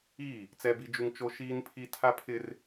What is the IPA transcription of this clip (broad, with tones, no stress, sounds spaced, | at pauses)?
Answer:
i˦˨ | t͡s ɛ˦ b i˦ d͡ʒ u˦ ŋ t͡ʃ o˦ ʃ iː˦ n pʰ i˦ tʰ a˦ pʰ ɪ˦ r